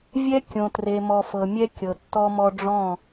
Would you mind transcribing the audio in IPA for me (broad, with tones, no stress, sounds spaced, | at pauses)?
vʲ ɛ˦ kʲ õ˨ t r e˨ m ɔ˨ f ɤ˨ mʲ ɛ˦ kʲ ɤ˨ tː ɔ˦ m ɔ˦ ɖ͡ʐ ɔ̃˦˨